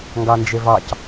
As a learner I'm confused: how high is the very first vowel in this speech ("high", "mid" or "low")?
low